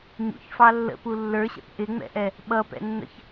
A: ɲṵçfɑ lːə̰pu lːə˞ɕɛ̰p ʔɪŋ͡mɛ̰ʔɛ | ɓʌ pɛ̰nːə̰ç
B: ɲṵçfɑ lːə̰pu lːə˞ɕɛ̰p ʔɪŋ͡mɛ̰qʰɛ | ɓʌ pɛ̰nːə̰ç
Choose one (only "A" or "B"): A